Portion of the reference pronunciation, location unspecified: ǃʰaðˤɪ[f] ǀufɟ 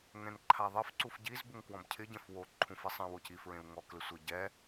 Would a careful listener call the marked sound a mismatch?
no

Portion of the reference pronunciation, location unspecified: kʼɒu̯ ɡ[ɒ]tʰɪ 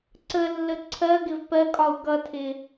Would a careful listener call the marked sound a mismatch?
yes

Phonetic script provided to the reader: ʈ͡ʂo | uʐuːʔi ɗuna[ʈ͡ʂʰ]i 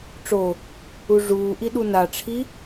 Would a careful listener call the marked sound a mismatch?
no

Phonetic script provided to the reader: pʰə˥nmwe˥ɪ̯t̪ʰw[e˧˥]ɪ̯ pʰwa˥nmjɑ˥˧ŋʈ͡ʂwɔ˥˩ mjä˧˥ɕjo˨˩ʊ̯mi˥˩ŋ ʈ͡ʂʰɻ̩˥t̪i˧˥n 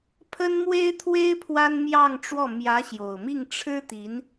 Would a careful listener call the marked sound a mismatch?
yes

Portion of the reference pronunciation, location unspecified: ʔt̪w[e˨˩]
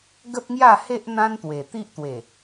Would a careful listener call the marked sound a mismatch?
no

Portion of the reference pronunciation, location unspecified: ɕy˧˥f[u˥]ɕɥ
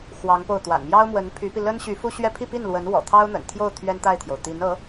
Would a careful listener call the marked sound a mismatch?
no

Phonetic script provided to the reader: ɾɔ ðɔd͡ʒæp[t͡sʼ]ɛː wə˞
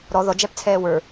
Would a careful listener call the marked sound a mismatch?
yes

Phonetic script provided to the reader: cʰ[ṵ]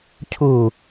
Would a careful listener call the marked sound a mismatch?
yes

